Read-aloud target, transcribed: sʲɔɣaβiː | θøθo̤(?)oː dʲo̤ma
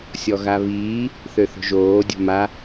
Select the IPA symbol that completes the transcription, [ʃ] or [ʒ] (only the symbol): ʒ